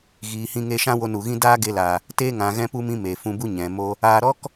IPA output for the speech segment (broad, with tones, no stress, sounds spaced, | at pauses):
ɣ iː˨ h ĩ˧ ŋ e˧ ʃ ã˦ w o˧ n u˨ ɣ ĩ˦ d aː˦ ɡ e˧ l aː˨ | t eː˧ ŋ ã˨ ɣ ɛ̃˦ p u˦ m ĩ˦ m e˨ f ũ˧ b u˦ ɲ ɛ̃˨ m o˦ | aː˧ ɾ ɔ˦ k